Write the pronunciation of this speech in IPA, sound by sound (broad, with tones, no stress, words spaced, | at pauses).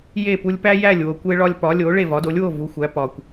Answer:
je˥˩pu˧lʲpæ˥ jæ˥˩lʲ wo˩kʷe˧ɭɒ˧lʲ pɒ˩˥lʲo˩˥ ɭe˥˩vɒ˩˥do˩˥lʲwo˥˩ vu˩˥xʷæ˩˥ pɒ˩kʷ